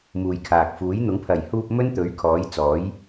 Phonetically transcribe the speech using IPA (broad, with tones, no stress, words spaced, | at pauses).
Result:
muː˨jkʰaː˨k̚ fuː˨˥jn̪ʊ˨˥ŋ pʰɐ˨˩jhuː˧p̚ mɵ˥nt̪ɵ˨˥ɥ kʰɔː˨˥jt͡sɔː˨˥j